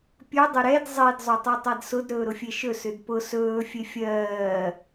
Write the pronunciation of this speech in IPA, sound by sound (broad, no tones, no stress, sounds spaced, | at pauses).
pʲ ɵ dˤ ʏ ɾ ɛ d zˤ e d zˤ o tˤ ɜ tˤ a d s ʊ d ɾ ɵː ɾ ʊ fʲ e ʃ ɵ s ʏ d p ʊ s ɵː fʲ e fʲ ɜː